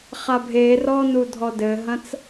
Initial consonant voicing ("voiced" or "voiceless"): voiceless